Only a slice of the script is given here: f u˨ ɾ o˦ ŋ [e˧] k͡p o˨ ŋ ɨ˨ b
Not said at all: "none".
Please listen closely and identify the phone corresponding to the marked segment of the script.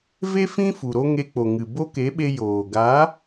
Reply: e˧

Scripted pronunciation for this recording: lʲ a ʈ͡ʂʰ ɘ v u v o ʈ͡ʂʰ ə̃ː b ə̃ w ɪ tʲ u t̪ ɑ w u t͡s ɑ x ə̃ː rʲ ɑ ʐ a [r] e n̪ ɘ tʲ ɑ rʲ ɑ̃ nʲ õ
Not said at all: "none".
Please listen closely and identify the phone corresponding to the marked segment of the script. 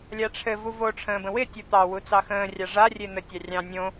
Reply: rʲ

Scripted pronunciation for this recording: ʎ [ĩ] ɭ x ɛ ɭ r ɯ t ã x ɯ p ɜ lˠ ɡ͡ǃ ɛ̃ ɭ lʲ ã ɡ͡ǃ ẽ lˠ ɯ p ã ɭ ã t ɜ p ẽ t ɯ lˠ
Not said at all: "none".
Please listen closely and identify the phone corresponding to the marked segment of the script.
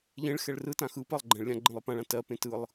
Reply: ẽ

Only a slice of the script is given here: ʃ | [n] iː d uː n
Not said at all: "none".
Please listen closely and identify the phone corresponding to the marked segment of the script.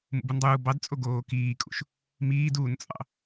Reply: m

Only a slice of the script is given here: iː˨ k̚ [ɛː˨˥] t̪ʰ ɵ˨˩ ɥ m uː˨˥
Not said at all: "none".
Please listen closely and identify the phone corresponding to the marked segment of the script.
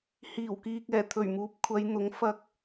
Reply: ɛː˨˩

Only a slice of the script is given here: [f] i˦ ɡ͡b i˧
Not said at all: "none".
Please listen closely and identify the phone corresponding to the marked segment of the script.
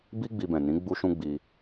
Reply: b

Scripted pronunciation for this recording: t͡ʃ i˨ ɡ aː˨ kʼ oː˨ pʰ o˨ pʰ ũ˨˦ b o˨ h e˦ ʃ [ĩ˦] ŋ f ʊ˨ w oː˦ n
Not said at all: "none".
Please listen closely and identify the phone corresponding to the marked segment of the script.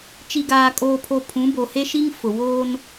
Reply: i˦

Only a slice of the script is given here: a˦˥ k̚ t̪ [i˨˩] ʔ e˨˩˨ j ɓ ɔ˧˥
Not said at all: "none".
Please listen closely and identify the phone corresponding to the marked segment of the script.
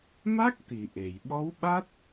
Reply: i˨˩˨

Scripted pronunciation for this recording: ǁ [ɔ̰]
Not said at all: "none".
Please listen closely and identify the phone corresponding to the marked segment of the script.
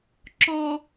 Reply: ɔ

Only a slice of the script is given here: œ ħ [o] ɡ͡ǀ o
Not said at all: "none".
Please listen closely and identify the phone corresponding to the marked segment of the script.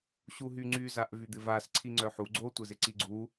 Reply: u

